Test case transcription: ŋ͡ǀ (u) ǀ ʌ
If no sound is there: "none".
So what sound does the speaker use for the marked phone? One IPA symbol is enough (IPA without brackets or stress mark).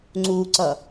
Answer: u